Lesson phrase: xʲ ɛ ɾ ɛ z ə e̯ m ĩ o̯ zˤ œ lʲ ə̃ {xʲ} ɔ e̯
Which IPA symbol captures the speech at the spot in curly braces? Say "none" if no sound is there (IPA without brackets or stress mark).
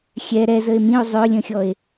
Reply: xʲ